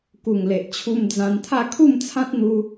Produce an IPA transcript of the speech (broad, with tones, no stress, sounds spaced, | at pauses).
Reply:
k u˨˩ ŋ l e˨ ʔ t͡ɕʰ u˧ m d͡z ã˧ n t̪ʰ a˥˧ kʰ u˥˧ m t͡sʰ ã˦ t̚ n̪ u˧